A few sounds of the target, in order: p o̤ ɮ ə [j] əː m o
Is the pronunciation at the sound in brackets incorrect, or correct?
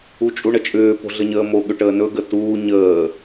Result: incorrect